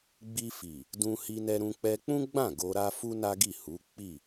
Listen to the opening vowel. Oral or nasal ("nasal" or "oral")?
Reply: oral